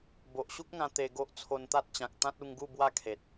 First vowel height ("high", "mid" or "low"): mid